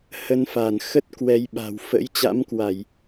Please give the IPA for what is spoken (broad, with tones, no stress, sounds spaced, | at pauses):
h ə˧ n f a˧˩ n x ə˦˥ t̚ k w ɛ˧ j ɓ a̤˨˩ w f ə̰˧˥ j t͡ɕ a̰˧˥ m k w a˧˩˨ j